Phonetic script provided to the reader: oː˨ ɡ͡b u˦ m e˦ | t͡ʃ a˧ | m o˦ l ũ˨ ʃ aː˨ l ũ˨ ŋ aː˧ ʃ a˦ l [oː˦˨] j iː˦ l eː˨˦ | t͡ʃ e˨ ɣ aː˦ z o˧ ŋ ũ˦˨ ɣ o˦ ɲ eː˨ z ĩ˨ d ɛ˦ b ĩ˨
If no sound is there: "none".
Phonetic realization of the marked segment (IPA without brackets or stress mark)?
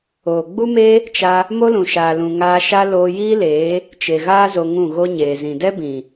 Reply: oː˧